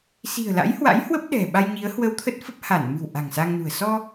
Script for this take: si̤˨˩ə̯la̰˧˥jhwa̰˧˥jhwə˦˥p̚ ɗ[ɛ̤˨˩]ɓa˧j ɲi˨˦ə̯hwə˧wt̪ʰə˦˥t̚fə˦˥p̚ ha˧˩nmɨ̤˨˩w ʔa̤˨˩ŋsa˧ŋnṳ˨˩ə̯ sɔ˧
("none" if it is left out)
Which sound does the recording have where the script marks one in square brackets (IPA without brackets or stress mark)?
ɛ̤˨˩